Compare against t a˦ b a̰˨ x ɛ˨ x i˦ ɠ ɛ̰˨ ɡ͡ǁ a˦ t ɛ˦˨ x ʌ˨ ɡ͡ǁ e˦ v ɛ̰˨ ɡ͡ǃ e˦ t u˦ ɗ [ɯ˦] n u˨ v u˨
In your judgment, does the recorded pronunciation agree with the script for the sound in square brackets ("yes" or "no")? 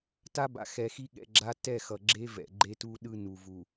yes